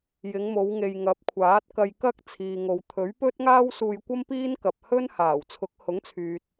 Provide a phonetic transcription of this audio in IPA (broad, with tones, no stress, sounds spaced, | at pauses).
j ɪ˨˧ ŋ m o˨˧ w ŋ e˨ j ŋ ɐ˨˥ p̚ kʷʰ aː˨˥ t̚ k ɐ˧ j k ɐ˥ k̚ t͡sʰ iː˨ ŋ o˨ w t̪ʰ ɵ˨˥ ɥ p ɵ˥ t̚ ŋ aː˥ w s uː˧ j kʷ ɐ˥ m p iː˥ n k ɐ˨ p̚ h ɵ˥ n h aː˨˩ w t͡sʰ ʊ˨˥ k̚ h ʊ˨˥ ŋ t͡sʰ yː˨ t̚